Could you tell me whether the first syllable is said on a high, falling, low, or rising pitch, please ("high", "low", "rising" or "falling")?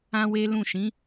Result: high